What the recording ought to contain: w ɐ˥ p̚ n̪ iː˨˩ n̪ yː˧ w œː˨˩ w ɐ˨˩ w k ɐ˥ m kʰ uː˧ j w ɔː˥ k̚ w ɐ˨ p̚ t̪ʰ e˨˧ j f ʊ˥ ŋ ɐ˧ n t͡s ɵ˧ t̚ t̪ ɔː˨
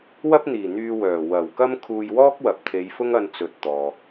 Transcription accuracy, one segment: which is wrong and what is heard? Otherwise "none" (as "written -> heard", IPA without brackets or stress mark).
ɵ˧ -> ɵ˨